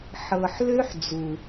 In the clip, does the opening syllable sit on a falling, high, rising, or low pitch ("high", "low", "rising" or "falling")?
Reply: low